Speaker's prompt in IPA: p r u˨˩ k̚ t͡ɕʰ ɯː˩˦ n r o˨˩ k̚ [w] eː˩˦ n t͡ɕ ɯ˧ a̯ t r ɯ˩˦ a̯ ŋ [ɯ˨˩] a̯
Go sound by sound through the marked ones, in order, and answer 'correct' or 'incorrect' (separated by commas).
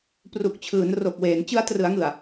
correct, correct